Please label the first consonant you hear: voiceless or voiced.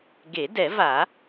voiced